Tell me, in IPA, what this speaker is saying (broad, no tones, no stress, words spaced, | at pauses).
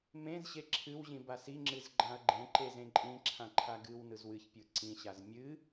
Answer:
mẽzɕe ǁʰɨwʑĩ basiŋ͡ǁɨz ɡ͡ǃãɐ̯ɡ͡ǃẽǃe zẽǃʼĩǁʰã ǃʰaɡɨwnɯz wɨçpʲɯ ǀĩɕaz mʲɨ